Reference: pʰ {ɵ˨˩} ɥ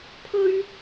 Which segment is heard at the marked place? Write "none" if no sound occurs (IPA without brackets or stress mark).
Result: ɵ˥